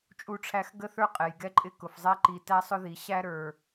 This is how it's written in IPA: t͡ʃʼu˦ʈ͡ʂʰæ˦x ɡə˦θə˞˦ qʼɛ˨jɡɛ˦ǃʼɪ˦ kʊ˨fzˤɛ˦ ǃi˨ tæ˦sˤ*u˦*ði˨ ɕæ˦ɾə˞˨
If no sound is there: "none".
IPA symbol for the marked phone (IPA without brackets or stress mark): ʊ˦